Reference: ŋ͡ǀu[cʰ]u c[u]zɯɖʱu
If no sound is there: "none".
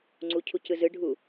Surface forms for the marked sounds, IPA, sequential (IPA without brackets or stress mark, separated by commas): cʰ, ɯ